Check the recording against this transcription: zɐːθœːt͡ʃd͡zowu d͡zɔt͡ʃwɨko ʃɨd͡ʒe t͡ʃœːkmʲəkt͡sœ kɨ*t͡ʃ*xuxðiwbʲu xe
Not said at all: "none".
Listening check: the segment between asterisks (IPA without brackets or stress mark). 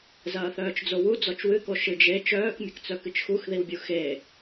t͡ʃ